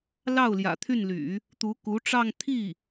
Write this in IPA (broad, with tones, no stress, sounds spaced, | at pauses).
l ɑ˥˩ ʊ̯ l j ä̰˨˩ t̪ʰ y˥˩ n l y̰˨˩˦ | t̪ u˧˥ k u˧˥ ʈ͡ʂ ɑ˥˧ ŋ t̪ʰ i˥˩